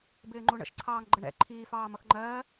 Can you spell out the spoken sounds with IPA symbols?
b ɪː ŋ͡ǃ u ɳ ə̰ ʃ ǀʰ ɑː ŋ ɡ͡ǃ ə ɳ ɛ̰ ǃʰ iː f ɑː m ʌ x ŋ͡ǃ ɜː

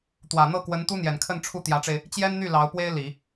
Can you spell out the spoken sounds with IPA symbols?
t̪ w ä˨˩ n̪ ɤ˥˩ k w ə˧˥ n t̪ u˥ n̪ j ɛ˨˩ n kʰ ə˥˧ n ʈ͡ʂʰ u˥˩ t̪ j ä˧˥ ʈ͡ʂ e˧ ɪ̯ | t͡ɕ j ɛ˥ n n̪ y˥˩ l ɑ˧˥ ʊ̯ p w e˥ ɪ̯ l i˨˩˦

